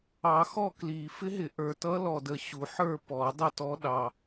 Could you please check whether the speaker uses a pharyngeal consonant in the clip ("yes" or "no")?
yes